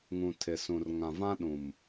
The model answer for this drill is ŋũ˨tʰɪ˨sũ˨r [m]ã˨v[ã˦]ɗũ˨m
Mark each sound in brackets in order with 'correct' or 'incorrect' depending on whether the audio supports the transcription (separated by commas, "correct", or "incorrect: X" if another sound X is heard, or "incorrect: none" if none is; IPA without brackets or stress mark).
incorrect: ŋ, correct